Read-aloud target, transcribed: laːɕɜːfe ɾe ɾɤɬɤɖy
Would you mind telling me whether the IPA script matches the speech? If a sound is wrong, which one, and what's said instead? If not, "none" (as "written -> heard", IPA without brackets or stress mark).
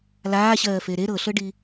y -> i